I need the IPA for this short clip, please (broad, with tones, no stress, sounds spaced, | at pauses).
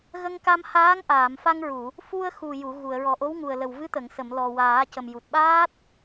ɣ ə˧ ŋ k a˧ m h aː˧˥ ŋ ʔ aː˨˩˨ m f a˧ ŋ ɹ u˨˩˨ | f u˧ ə̯ x u˨˩ j u˨˩˨ ɣ u˨˩˨ ə̯ ɹ ɔ˨˩ ʔ o˧˥ w ŋ u˨˩ ə̯ l ə˨˩ w v ɨ˧˥ t̪ ə˨˩˨ ŋ s ə˨˩˨ m l ɔ˨˩ w aː˨˩˦ c ə˨˩ m j u˨˩ t̚ ɓ aː˦˥ t̚